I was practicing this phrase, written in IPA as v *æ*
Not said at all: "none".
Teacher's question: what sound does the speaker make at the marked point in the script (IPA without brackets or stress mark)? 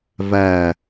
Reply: æ